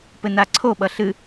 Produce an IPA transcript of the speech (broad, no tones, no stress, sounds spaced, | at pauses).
p ɘ n a ǀʰ o ɓ ʌ ɬ ɨ